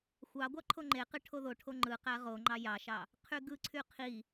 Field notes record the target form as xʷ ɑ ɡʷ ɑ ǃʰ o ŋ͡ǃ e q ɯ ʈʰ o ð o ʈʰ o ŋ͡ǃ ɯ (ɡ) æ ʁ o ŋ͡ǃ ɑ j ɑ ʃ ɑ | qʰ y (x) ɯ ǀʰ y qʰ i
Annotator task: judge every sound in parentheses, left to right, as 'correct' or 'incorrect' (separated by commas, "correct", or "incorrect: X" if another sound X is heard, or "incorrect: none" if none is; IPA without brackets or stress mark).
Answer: incorrect: q, incorrect: ɡ